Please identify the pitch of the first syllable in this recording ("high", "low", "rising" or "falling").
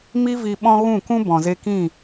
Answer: high